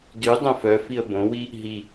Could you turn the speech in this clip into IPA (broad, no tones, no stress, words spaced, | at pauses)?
dy dˤœ̃fœfiə̯ bõwi | ɦi